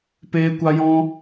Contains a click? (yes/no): no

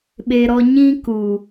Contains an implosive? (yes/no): yes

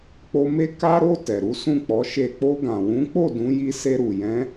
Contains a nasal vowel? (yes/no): yes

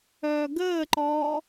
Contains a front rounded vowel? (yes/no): yes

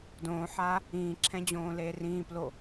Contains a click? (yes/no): yes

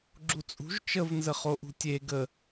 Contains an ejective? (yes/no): yes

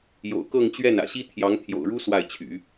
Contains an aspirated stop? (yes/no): yes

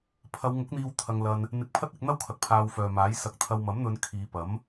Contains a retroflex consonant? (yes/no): no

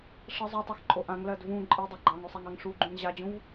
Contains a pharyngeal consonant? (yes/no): no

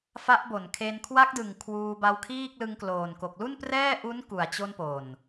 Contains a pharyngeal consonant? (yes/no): no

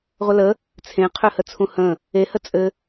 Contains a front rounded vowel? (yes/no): yes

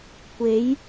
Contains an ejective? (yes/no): no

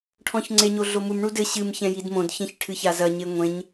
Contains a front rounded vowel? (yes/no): no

